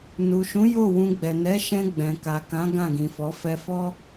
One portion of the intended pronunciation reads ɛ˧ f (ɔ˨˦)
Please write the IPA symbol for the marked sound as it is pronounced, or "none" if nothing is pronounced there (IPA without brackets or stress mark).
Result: ɔ˦